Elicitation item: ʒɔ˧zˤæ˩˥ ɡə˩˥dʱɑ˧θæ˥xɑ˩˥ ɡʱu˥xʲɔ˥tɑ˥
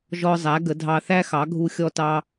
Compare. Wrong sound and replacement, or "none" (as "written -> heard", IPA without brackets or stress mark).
none